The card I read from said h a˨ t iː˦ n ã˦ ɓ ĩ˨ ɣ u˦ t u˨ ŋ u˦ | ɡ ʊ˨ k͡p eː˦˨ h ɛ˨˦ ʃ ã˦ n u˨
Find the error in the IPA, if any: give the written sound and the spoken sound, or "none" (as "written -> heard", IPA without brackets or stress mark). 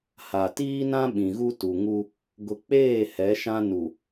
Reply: none